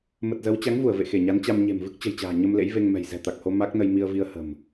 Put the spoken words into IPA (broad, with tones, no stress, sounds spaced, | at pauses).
m ə˨˩ t̚ z ə˨˦ w t͡ɕ a˨˦ ŋ v u˧˩ ə̯ v ḛ˧˨ x e˧˩ ɲ a˨˦ n t͡ɕ a˧ m ɲ e̤˨˩ m v ɨ˦˥ k̚ t͡ɕ ə̤˨˩ j t͡ɕ a̤ː˨˩ ɲ ə˧ m l ḛ˧˥ j v e˧ ŋ m ɛ̤˨˩ j z ɛ̤˨˩ t̪ a˨˩ k̚ h o˧ m a˦˥ k̚ n ə˧ j m i˧ ə̯ v i˧ ə̯ h ə̤˨˩ m